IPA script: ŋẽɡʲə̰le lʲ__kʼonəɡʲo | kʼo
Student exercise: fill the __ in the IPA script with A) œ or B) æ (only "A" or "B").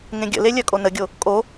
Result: A